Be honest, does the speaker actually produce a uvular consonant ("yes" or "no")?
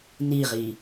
yes